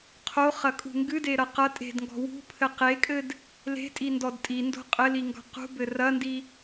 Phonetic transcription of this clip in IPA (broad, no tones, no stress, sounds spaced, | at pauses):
qʰ o χ ɐ kʼ ṳ ŋ ɡ ɨ d e ɾ ɐ q ɐ tʼ e̤ d ŋ ɡ ɔ̤ w ṳ pʰ ɘ q e kʼ ɘ d | l e̤ tʼ i n d ɔ d tʼ i n d o̤ qʼ ɘ l i ŋ ɡ ɔ̤ q ṳ b ɘ r ɐ n d i